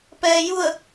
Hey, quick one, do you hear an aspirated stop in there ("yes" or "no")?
no